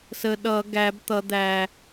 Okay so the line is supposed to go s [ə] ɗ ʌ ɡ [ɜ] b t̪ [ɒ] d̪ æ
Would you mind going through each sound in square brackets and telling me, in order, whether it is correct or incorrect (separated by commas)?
correct, incorrect, incorrect